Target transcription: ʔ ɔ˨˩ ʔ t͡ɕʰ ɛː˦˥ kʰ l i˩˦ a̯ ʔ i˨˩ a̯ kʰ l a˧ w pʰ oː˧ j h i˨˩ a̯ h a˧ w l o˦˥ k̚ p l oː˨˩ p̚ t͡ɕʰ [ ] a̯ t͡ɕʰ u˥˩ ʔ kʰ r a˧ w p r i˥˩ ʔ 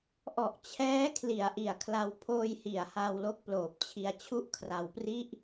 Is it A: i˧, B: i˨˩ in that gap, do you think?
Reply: A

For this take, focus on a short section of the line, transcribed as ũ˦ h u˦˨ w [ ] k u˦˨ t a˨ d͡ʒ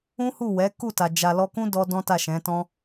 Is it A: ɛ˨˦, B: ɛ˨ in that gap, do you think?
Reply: A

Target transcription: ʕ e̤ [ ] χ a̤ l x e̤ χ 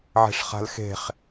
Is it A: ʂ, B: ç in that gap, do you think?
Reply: A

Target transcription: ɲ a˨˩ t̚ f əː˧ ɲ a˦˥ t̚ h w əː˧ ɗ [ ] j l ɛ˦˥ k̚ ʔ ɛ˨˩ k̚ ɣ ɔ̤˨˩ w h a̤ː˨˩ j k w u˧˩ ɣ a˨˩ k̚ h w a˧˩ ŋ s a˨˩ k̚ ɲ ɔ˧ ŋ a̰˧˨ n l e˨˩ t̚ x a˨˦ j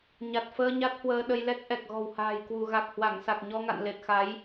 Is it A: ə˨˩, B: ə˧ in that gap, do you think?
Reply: B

